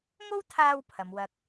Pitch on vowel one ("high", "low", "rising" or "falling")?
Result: high